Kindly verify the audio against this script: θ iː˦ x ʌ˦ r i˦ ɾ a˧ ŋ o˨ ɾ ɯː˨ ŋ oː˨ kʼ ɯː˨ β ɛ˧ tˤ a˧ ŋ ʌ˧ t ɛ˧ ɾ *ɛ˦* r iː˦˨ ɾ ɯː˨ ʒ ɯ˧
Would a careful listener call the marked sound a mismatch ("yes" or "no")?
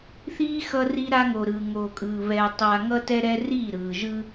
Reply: yes